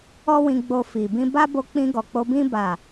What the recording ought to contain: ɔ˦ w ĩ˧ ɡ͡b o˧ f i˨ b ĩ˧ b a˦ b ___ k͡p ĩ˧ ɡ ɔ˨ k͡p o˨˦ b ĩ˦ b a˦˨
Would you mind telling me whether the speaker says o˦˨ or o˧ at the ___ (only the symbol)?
o˧